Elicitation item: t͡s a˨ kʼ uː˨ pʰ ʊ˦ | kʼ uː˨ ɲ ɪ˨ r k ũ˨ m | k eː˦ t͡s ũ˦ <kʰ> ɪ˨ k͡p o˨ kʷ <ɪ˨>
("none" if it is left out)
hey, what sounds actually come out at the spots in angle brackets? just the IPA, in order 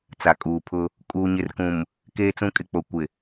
kʼ, ɪ˨

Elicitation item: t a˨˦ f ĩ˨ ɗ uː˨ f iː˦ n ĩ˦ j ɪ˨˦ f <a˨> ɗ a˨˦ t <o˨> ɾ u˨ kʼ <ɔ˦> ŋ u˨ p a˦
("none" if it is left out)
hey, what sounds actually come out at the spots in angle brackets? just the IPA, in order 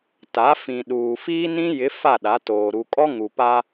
a˦˨, oː˨, ɔ˦

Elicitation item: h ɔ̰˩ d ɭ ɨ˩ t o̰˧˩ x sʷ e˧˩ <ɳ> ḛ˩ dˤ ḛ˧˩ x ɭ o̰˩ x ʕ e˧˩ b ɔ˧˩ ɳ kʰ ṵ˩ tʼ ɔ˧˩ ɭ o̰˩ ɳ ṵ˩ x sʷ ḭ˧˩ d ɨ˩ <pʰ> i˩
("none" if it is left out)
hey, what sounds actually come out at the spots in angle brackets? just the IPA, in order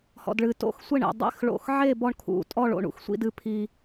ɳ, pʰ

